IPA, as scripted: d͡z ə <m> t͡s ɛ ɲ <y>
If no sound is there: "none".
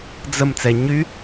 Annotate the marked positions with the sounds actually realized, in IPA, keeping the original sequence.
m, y

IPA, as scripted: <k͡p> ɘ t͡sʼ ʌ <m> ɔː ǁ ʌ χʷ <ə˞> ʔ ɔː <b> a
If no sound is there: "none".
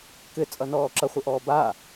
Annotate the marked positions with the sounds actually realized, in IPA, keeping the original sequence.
k, n, ə, b

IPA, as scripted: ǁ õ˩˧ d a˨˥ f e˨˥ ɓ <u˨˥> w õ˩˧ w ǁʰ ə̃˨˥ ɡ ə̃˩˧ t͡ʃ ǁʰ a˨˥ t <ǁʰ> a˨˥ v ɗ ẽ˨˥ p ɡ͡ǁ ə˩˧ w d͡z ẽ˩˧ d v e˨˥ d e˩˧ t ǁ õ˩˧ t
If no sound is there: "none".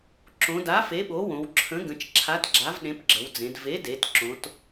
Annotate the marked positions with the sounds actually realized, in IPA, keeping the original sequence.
o˨˥, ɡ͡ǁ

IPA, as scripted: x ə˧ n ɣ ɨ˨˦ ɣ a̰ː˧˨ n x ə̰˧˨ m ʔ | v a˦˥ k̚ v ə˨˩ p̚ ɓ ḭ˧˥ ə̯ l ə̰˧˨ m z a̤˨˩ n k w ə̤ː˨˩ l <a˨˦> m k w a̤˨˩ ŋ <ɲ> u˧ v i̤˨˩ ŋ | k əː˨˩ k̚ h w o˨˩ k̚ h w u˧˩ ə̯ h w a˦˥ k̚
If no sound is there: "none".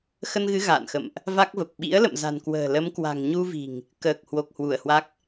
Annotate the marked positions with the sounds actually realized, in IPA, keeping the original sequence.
ə˨˦, ɲ

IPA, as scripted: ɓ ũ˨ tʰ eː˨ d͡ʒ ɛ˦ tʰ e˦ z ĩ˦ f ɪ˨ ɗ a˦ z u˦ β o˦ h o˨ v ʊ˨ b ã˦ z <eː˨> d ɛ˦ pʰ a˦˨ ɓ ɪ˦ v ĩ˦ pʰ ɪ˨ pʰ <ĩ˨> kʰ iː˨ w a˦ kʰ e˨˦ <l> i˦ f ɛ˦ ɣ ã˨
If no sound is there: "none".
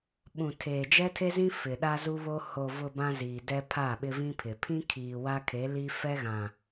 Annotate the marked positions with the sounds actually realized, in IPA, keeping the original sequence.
iː˨, ĩ˦, l

